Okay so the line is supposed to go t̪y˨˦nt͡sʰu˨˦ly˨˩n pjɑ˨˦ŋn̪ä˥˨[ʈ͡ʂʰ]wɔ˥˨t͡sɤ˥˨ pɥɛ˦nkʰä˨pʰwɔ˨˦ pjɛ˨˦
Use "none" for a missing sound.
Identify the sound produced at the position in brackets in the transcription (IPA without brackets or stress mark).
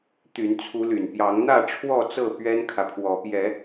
ʈ͡ʂʰ